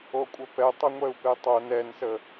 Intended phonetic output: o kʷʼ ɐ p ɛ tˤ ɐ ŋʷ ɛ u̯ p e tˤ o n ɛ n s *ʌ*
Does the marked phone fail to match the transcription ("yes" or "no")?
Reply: yes